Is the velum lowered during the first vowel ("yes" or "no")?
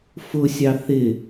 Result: no